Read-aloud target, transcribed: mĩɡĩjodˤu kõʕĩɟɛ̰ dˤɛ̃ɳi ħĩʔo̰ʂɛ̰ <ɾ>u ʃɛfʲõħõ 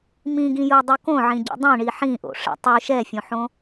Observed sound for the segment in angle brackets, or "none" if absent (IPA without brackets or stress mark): tˤ